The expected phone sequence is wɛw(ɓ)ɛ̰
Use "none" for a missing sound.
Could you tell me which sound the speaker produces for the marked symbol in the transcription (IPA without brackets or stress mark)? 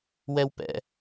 p